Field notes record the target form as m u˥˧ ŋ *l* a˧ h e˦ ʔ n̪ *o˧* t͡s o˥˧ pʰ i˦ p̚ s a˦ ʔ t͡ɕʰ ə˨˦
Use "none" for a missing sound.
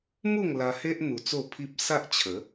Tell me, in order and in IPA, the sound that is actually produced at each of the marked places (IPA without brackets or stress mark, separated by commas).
l, u˧